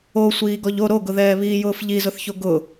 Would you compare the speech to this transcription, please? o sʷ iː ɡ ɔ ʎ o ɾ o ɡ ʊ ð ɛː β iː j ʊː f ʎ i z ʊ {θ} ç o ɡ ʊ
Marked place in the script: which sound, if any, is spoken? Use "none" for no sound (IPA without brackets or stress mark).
θ